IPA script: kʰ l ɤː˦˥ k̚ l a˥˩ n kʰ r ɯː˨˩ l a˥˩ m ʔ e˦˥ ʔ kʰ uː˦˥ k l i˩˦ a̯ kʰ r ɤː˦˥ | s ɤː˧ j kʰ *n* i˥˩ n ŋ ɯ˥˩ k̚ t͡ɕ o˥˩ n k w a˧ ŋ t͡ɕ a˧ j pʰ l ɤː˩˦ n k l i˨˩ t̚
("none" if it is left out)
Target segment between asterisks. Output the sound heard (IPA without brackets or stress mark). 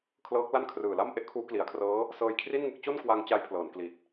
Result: r